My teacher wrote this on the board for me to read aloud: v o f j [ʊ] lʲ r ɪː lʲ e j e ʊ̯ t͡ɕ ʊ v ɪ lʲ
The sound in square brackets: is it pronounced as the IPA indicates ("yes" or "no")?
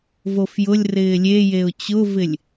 yes